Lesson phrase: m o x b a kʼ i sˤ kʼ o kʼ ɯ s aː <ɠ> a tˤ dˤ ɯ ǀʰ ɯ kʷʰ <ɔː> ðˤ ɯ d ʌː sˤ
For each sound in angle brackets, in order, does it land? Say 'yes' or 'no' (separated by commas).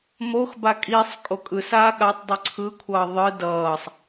yes, no